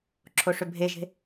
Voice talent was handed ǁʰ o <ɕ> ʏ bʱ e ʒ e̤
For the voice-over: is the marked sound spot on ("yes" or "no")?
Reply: no